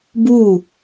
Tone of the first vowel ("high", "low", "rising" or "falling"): falling